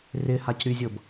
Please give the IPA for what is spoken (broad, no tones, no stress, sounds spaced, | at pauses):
r ɪ h a c ɾ y zʲ ɤ b